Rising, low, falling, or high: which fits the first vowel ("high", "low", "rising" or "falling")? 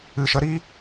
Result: low